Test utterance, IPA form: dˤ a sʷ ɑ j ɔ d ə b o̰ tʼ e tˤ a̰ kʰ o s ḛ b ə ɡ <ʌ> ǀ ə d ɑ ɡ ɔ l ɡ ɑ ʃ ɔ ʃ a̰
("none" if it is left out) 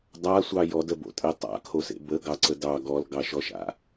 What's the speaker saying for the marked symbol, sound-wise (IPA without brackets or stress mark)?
ɑ